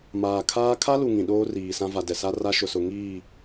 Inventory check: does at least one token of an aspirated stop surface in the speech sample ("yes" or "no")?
yes